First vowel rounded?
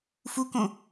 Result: yes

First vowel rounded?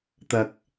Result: no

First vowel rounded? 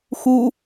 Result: yes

